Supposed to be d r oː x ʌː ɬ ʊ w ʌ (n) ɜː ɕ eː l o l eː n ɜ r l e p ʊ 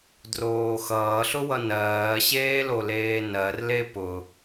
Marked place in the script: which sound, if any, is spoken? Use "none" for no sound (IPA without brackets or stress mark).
n